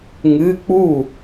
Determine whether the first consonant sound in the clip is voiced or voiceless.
voiced